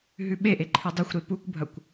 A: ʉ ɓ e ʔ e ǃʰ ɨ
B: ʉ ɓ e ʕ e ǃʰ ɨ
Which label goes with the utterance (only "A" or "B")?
A